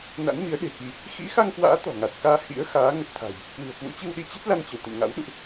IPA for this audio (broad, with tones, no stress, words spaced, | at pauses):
na̰˧˥nmi˨˦ə̯ɗe̤˨˩ki˧ | xḭ˧˥xa˧ŋkwa̰ː˧˥ t̪ɔ̤˨˩ŋa˨˩t̚kaː˧ hḭ˧˥ə̯ xaː˨˦ ŋə˨˩t̚t̪ʰa̤˨˩j | kwɨ̤˨˩ə̯kwṵ˧˥t͡ɕɨ˧w ɗi˧t͡ɕe˦˥t̚la˧n t͡ɕə˧˩wt̪ə̰˧˨mŋa̰˧˥w ɗṵ˧˨ʔ